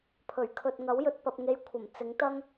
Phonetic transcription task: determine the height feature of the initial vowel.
mid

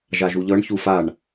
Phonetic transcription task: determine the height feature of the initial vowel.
low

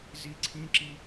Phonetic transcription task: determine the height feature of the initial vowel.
high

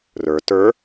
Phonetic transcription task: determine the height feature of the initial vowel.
mid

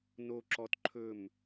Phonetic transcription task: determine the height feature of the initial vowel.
mid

